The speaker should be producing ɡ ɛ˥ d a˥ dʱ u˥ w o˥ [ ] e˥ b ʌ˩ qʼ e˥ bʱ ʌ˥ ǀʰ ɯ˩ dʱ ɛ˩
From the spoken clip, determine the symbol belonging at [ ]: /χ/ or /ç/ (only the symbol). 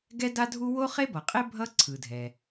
χ